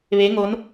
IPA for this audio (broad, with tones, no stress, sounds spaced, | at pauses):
ʋ e˧˥ ŋ o˧˥ n